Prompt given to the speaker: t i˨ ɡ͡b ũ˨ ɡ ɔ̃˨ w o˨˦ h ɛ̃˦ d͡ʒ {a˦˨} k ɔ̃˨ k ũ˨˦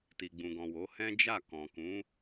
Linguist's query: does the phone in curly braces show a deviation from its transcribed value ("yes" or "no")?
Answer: no